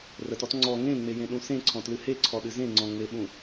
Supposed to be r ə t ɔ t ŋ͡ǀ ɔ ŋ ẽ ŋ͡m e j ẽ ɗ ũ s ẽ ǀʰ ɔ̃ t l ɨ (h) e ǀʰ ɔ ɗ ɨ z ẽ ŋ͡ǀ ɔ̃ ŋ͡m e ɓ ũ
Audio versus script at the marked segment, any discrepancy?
no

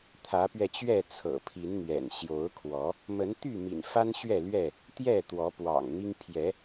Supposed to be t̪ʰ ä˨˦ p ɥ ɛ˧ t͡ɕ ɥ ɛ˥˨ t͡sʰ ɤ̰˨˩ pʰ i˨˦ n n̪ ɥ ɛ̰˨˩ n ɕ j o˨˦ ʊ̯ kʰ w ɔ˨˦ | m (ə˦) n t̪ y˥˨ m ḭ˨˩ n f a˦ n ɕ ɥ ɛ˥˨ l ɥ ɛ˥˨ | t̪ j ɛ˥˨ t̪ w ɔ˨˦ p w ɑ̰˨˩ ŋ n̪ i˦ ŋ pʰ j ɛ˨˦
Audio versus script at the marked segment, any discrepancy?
yes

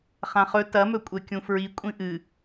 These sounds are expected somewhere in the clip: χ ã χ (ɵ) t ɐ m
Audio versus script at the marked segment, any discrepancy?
no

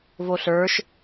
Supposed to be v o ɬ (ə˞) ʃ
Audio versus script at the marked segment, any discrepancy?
no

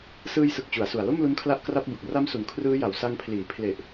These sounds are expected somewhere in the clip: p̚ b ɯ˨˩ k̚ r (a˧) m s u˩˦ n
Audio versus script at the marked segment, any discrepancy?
yes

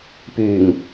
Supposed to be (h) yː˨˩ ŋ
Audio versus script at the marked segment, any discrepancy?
yes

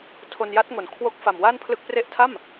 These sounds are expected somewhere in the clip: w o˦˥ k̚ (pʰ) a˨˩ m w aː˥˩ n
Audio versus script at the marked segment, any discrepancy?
yes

